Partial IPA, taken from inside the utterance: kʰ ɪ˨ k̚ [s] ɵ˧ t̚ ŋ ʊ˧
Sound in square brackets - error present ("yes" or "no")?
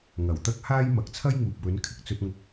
yes